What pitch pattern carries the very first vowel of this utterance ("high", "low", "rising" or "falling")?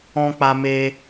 high